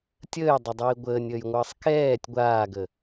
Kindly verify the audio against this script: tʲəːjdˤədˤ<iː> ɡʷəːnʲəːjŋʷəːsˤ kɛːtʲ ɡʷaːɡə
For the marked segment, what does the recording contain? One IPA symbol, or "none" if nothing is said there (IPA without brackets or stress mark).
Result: iː